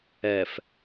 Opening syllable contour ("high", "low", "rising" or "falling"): low